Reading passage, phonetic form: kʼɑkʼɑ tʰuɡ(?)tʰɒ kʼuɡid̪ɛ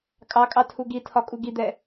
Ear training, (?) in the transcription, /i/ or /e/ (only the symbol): i